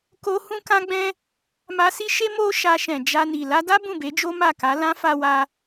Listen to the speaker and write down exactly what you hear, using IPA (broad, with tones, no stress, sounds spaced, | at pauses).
k o˧ h ũ˦ k ã˦ ɡ͡b ɛ̃˦ | m a˧ s i˦ ʃ e˦ m o˦ ʃ a˧ ʃ ɛ̃˨ d͡ʒ a˧ n i˨ l a˧ d a˦ b ũ˦˨ b e˨˦ d͡ʒ o˦ m a˦˨ k a˨˦ l ã˦ f a˧ w a˧